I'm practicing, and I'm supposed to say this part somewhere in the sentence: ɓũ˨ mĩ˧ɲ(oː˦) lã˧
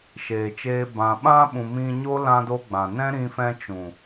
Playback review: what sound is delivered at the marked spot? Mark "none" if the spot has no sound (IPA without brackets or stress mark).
o˦